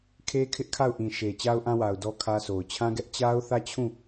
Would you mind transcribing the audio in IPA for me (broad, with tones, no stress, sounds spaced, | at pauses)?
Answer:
kʰ e˦ kʰ ɪ˦ ʔ kʰ a˦˨ ʊ̯ ʔ ĩ˨ ʃ e˨ t͡ɕ a˦ ʊ̯ ʔ ã˦ w a˨ ʊ̯ d ɔ˦ kʰ ä˦ s o˨ ʊ̯ t͡ɕʰ ã˦ ɡ ɛ˦ ʔ t͡ɕ a˦ ʊ̯ θ ä˦˨ t͡ɕʰ ũ˦˨